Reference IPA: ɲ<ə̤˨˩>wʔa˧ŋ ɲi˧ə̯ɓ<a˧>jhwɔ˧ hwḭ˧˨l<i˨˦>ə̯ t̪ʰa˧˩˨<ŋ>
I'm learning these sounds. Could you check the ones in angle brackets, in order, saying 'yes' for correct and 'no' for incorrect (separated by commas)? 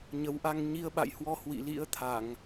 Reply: no, no, no, yes